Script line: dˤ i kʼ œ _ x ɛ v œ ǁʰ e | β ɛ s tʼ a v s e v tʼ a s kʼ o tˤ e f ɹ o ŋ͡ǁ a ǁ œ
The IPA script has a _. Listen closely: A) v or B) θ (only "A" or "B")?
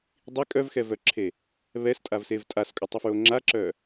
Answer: A